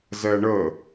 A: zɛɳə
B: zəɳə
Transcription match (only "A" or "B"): A